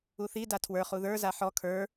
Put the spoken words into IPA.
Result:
uθi datʰwə˞ χuðə˞ zaħɔ kʰə˞

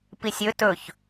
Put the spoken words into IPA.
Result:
pisʲɵ tɵç

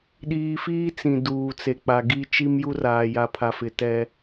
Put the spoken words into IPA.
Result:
ɗiː˨fiː˦ t͡sĩ˨duː˨t͡se˨k͡pa˨ ɡi˦ t͡ʃi˦mju˦raː˨ ja˨pʰa˨fɪ˨ tɛ˦

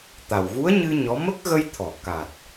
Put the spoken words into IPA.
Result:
t̪a˨˩wɣu˧˥ə̯ɲɨ˧ ɲɔ˧˥ mə˦˥k̚ɣə˧jt̪ʰɔ˨˩˨ ka˨˩t̚

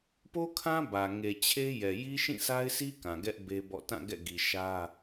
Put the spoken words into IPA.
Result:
po˦kʰã˦ bä˨ ŋe˨t͡ɕʰe˦jɛ˨ ji˦ʃĩ˦˨sʰa˦ɪ̯sʰi˦ kã˨ɡɛ˦ʔ be˦bɔ̰˦˨ tã˦˨ɡɛ̰˦˨ɡi˨ ʃä˦

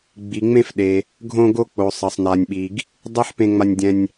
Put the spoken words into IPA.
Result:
ɡ͡bi˩ŋ͡mẽ˧fɗe˩ | ɡʱõ˧ɡo˧ k͡po˩sˤʌ˩sˤ na˩nʲɓi˩ɡ | dˤe˥ħpẽ˧ŋ͡ma˧nʲdʲɛ̃˧nʲ

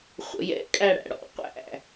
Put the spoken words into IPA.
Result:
χʷə̰jɛ̰ kʼæɽæ̰ɽɔ̰ qʷæ̰

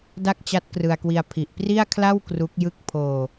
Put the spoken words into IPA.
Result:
da˥˩k̚t͡ɕa˦˥t̚krɯ˧a̯kwi˧a̯ pʰi˨˩ʔpri˥˩a̯kʰla˥˩w kru˦˥k̚jɯ˥˩k̚ pʰoː˧

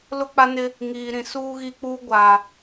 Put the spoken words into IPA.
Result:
lʊ˦k͡pa˦nɪ˦ | ŋiː˨ɾĩ˨ suː˦ɣi˦k͡puː˦ ɡʷa˨

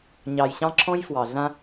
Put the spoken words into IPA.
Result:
ɲɑ˨jɕɑ̃˦ǁʰɔ̃˦j fwɑ˨ɮã˦

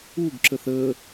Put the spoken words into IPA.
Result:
uɡǁəθ ə

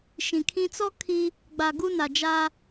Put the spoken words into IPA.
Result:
ʃĩ˨kʰĩ˦ t͡sɔ˦ kʰi˦ | ɡ͡ba˨ɡu˦na˨d͡ʒa˦

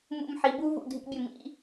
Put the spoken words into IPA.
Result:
mṵ˧m ħi˩˧bu˥ vṵ˧˩dʱḭ˧bʲɘ˧˩ mḭ˥˧

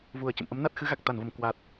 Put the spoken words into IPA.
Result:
vu˨˩ə̯t͡ɕə̰˧˨mʔə˨˦m na˦˥t̚xɨ˨˦ɣa˨˩k̚ t̪a˧˩nvə˧˩m kwa˨˩t̚

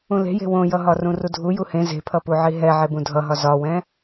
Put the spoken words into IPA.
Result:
ũle̤je̤ wõjʌɦɒ rũrudʱu juhẽ ze̤pʰʌpuʕi ɦɛ ʕebũdʱʌɦɒ zɒwɛ̃

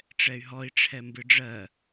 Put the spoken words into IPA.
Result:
ʈ͡ʂɛy̯ɦɔi̯ʈ͡ʂʰɛ mbɨɖ͡ʐɜ

